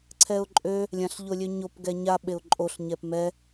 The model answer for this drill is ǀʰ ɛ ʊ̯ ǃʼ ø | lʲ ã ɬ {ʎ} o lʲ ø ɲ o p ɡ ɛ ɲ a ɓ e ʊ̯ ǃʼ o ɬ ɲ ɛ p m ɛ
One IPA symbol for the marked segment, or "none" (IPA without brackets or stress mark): ʎ